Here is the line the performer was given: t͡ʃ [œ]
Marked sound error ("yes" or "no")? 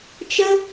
yes